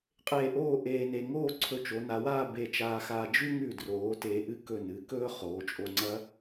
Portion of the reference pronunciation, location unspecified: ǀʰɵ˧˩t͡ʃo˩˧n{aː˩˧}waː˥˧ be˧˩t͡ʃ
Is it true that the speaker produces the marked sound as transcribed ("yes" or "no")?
no